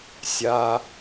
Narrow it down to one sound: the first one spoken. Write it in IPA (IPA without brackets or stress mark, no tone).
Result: sʲ